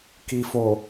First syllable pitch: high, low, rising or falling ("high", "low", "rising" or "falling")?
low